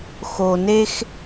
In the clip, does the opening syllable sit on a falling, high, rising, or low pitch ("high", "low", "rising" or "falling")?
low